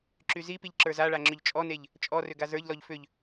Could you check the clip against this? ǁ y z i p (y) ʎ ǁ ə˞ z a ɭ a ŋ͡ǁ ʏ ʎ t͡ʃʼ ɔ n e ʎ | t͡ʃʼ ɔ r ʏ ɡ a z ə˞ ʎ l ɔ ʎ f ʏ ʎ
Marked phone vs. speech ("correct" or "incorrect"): incorrect